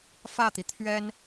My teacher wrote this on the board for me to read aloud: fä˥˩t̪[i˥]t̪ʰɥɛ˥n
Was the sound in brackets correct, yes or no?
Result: no